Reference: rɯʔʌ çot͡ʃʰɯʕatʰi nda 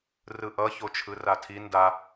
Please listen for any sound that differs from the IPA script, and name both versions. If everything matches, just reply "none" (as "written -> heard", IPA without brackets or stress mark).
ʕ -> r